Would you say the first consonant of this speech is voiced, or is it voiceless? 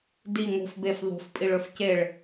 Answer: voiced